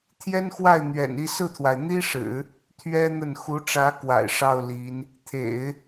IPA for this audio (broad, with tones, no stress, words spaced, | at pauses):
t̪ʰjɛ˥nxwa˥˩ɪ̯ n̪ɥɛ̰˨˩ni˥˧ sɹ̩˥˩t̪ʰwa˩ɪ̯ n̪i˥ʂɻ̩˨˩˦ | t̪ʰɥɛ˥ n̪ə˥˩n xu˧˥ʈ͡ʂä˧˥ kwa̰˨˩ɪ̯ ʂɑ˥˩ʊ̯ li˧˥n | t̪ʰḛ˨˩˦ɪ̯